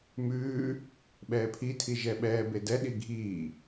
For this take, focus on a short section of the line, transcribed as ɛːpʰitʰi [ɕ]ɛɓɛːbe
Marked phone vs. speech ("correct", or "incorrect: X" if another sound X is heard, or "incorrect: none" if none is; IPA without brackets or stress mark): incorrect: ʒ